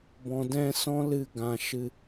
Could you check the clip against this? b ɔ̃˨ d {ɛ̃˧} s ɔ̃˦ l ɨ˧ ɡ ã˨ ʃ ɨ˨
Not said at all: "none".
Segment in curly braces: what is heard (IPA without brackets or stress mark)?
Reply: ɛ̃˧